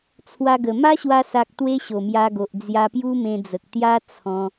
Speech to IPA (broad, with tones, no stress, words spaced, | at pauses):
t͡sʰwa˧ɡə˨˩ ma˦ɕwa˧sa˨k̚ t̪we˦ɕo˨˩mja˧ɡo˨ʔ d͡zja˧pju˦mẽ˧d͡zə˨k̚ t̪ja˦t͡sʰɔ̃˧